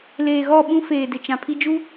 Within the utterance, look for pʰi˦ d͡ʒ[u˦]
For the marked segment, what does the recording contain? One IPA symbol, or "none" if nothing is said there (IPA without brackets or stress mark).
u˦